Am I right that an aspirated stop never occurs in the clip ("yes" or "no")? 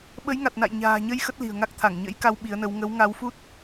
no